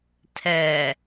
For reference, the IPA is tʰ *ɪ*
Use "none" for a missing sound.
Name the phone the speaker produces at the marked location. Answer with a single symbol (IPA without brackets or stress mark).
ɛ